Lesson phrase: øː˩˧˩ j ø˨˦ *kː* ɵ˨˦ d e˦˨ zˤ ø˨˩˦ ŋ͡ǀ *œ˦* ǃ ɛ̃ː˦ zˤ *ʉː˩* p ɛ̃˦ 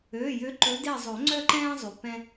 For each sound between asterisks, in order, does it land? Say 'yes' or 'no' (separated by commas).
no, yes, no